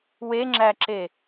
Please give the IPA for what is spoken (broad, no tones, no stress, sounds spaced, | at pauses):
w e ŋ͡ǁ æ ǁ e